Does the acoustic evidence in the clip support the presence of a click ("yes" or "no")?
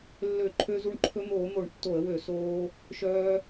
yes